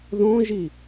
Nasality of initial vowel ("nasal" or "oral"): nasal